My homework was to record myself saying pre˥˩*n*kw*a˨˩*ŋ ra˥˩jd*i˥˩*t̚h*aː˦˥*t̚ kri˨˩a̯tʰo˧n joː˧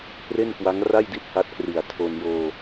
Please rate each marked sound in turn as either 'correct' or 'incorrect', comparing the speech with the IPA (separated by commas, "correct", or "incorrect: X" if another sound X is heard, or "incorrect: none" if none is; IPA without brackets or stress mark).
correct, incorrect: a˦˥, correct, incorrect: a˦˥